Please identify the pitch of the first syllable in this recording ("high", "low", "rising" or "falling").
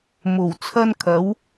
low